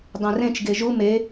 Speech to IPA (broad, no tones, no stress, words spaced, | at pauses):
dˤẽrẽt͡ʃ ɡeʒu me